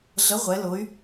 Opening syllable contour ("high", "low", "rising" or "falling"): rising